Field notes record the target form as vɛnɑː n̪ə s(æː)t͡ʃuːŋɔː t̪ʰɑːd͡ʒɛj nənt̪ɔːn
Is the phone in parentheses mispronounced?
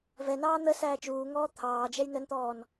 no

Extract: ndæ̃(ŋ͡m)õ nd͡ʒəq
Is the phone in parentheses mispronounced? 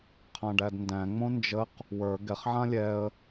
no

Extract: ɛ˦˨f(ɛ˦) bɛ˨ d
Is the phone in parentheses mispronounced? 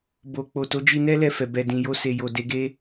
yes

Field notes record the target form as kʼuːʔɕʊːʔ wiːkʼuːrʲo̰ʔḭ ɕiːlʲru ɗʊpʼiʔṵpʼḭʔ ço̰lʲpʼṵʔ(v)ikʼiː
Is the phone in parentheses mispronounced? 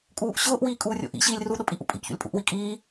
yes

